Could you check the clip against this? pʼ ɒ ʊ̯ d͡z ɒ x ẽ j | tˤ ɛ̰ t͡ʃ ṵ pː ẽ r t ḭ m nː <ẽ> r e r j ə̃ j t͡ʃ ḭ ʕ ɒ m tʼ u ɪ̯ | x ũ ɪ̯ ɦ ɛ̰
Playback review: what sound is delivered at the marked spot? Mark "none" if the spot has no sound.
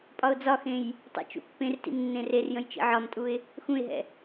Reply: ẽ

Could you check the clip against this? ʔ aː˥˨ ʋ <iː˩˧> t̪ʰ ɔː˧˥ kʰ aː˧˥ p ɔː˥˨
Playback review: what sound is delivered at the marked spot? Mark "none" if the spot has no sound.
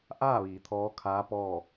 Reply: iː˩˧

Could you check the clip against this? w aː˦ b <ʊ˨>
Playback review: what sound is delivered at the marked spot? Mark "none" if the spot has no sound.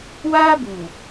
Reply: u˨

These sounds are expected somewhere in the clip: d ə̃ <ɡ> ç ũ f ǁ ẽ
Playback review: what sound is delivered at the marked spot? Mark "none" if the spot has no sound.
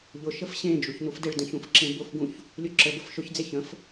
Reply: none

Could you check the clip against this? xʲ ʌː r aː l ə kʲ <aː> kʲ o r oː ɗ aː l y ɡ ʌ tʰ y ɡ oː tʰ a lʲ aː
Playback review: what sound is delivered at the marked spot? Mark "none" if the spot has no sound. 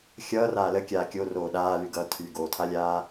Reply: aː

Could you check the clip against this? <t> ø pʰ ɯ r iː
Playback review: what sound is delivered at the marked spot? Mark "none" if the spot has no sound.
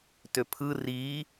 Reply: t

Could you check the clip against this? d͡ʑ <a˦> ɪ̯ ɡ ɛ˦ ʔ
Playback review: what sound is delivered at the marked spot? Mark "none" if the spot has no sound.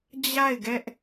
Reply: a˦˨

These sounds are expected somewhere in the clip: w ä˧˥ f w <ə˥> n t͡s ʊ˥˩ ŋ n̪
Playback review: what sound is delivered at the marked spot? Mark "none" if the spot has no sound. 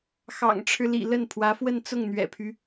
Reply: ə˥˧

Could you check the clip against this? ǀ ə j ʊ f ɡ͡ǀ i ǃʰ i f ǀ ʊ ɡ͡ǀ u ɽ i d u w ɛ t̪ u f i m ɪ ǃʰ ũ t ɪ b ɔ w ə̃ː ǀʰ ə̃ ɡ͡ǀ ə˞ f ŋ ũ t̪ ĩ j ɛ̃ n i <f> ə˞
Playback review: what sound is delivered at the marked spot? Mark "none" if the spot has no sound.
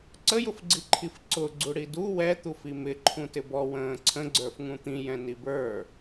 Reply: b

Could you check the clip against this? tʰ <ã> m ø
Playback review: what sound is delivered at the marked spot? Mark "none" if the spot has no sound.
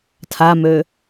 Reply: a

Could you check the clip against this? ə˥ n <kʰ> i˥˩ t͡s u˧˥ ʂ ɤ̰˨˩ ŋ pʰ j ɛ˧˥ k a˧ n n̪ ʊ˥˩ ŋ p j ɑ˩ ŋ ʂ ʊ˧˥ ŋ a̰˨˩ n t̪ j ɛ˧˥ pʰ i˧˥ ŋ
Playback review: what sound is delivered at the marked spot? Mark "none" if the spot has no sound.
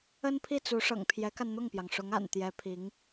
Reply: pʰ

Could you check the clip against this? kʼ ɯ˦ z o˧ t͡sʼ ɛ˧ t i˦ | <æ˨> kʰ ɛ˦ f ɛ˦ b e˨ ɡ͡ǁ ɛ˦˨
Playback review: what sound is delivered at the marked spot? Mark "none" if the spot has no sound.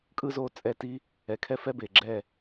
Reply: ɛ˨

